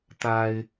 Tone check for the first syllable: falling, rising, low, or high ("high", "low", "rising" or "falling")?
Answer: high